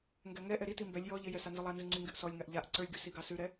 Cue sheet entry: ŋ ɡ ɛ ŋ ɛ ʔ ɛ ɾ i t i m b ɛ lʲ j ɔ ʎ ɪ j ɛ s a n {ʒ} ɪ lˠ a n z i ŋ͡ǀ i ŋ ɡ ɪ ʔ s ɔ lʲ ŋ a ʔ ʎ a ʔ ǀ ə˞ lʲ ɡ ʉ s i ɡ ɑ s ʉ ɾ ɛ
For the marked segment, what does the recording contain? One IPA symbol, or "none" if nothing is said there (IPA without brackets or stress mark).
z